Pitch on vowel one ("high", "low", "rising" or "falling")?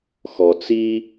low